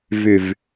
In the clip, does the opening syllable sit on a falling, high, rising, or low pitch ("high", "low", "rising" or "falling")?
falling